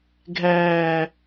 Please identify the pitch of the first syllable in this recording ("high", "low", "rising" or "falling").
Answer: low